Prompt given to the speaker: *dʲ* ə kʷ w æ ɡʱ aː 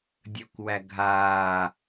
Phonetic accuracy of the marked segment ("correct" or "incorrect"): correct